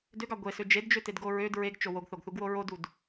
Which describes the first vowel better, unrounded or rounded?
rounded